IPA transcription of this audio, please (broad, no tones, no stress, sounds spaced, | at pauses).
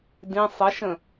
d ĩ sˤ ə ʃ ə̃